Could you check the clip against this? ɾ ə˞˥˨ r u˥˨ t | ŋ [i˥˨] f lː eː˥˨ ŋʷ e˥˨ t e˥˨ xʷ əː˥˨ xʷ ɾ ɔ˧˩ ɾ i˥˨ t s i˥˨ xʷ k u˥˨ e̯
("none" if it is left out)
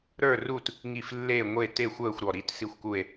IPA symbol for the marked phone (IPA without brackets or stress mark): i˧˩